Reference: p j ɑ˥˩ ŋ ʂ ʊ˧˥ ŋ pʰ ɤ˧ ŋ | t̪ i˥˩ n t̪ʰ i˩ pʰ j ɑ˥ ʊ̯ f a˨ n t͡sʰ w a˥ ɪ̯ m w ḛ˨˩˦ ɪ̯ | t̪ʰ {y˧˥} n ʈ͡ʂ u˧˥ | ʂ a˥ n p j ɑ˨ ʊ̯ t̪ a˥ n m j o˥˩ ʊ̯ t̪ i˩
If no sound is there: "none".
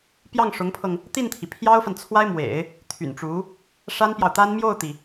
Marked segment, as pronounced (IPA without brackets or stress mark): y̰˨˩